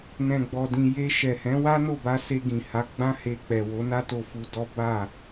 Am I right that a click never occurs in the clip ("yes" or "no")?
yes